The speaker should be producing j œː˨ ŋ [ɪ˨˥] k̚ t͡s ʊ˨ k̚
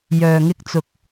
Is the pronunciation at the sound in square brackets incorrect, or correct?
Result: incorrect